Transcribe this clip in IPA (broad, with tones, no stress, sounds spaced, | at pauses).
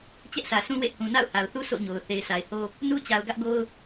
t͡ɕ ɛ˦ ʔ s ä˨ sʰ ũ˦ w ḛ˦˨ h ũ˨ n a̰˦˨ ʊ̯ h a˨ ʊ̯ θ u˦ s o̰˦˨ ɲ o˨ ʊ̯ θ e˨ ɪ̯ s a˨ ɪ̯ h o˦ | n u˦ t͡ɕ a˨ ʊ̯ ɡ ä˦ ʔ ɡ o˦ ʊ̯